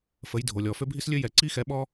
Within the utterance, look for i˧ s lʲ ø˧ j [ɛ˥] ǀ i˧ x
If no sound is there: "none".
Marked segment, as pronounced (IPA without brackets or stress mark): ɛ˩